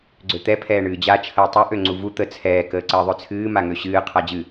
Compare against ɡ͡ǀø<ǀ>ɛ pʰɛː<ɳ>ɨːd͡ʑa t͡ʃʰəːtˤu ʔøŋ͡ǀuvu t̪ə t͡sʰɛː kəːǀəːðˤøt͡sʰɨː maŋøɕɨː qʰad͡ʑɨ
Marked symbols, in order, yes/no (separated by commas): no, yes